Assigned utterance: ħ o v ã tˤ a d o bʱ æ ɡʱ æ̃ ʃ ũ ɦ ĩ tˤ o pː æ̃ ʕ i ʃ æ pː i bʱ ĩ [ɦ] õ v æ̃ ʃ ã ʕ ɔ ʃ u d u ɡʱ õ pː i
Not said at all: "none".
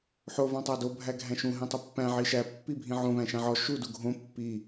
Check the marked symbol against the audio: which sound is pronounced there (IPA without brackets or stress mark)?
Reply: ʕ